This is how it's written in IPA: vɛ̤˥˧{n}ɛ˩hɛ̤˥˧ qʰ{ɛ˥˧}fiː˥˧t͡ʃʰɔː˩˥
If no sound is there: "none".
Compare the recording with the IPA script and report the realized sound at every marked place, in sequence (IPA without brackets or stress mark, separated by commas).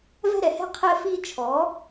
ɾ, ɛ˥˧